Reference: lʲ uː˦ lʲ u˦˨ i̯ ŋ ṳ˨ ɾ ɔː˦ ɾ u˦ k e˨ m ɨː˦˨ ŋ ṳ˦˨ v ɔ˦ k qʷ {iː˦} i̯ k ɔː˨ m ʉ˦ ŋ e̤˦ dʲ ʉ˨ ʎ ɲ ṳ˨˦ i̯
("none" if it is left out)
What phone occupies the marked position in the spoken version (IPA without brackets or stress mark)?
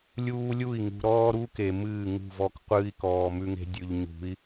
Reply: ɨː˦